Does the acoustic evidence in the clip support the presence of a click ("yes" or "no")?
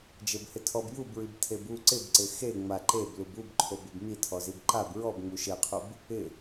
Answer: yes